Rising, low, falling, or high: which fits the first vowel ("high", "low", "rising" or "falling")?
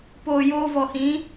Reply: low